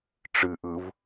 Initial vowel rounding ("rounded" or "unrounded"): unrounded